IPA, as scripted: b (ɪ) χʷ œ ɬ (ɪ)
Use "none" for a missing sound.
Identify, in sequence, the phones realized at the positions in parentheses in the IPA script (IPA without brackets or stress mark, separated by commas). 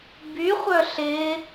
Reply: y, ɪ